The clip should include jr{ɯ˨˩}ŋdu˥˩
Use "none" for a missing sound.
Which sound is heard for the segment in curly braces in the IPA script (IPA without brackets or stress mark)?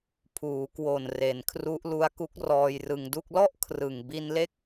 ɯ˧